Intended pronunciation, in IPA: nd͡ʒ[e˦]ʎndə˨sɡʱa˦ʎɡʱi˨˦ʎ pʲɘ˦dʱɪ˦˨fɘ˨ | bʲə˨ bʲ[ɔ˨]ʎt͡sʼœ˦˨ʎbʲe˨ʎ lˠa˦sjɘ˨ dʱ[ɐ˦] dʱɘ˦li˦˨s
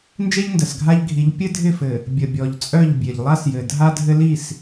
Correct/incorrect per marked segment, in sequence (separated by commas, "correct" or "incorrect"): correct, correct, incorrect